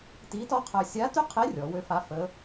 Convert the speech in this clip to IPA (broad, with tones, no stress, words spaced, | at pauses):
ti˧˥tɔ˥qʰœ˧ sʲa˧˥ty˥qʰe˧˥ rʲɔ˩˧wø˧˥fa˧˥ fə˧˥